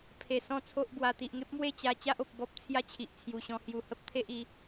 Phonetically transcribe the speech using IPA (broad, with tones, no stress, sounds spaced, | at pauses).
pʰ e˨˩ s ɔ̃˥˧ t͡sʰ o˦ ʔ b w a˧ t̪ i˨ ʔ ŋ e˦ p̚ m w e˥˧ t͡ɕ a˧ t͡ɕ a˦ ʔ o˨ p̚ b ɔ˦ p̚ t͡sʰ j a˦ t͡ɕʰ i˨ ʔ t͡sʰ j u˨˩ ɕ ɔ̃˧ h j u˨˩ h ə˦ p̚ t̪ʰ e˦ ʔ i˨˦